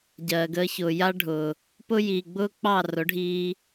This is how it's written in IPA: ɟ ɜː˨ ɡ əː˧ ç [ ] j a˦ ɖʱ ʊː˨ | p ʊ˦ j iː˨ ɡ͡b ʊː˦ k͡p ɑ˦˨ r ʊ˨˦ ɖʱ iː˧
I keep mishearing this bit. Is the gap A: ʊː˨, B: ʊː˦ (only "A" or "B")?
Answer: A